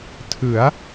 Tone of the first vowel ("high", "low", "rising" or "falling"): rising